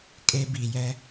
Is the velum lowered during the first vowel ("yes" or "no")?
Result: no